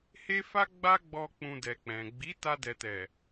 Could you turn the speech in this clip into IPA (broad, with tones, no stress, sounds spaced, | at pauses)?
h e˦ f a˦ ɡ͡b a˦ ɡ͡b ɔ˧ k͡p ũ˧ d ɛ˨ k͡p ɛ̃˨ ɡ͡b i˨˦ t a˧ d ɛ˨ t ɛ˨